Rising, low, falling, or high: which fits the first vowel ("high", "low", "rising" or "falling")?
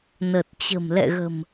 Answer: low